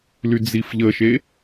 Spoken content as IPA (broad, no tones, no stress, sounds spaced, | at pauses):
l y d͡z i f ʎ ə ʃ e